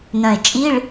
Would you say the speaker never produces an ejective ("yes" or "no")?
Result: no